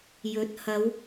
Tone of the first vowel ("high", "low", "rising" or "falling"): rising